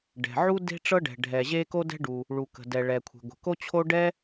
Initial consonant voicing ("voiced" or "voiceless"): voiced